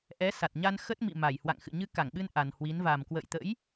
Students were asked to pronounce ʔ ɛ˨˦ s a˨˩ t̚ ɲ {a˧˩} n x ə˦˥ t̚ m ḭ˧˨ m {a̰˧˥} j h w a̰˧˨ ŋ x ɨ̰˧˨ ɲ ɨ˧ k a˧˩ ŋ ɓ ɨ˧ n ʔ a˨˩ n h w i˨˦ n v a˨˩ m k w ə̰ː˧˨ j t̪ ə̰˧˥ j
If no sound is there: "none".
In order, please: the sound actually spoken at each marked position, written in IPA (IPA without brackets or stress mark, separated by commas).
a˧, a˧˩